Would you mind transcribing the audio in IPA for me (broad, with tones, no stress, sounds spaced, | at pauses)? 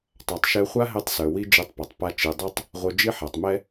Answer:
tˤ a˨ tˤ ʃ ɛ˧ χʷ a˦ ɦ ɛ˧ tˤ s œ˨ w i˦ d͡ʒ i˧ tˤ p ɔ˨ tˤ p a˧ t͡ʃ i˨ dˤ ɛ˦ tˤ | ʁʷ œ˧ d͡ʒ i˦ ħ a˨ tˤ m ɛ˦